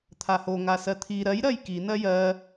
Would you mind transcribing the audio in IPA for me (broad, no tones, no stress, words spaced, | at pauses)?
t̪ʰaho ŋasɜt̪ʰi ɾɜjɾɜj ki nɜjɜ